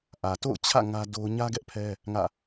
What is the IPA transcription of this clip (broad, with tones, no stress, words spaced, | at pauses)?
ʔä˨ to̰˦˨ʊ̯t͡ɕʰä̰˦˨ ŋä˦ do˦ʊ̯ ɲä˦ ɡɛ˦ʔpʰɛ˦ | ŋä̰˦˨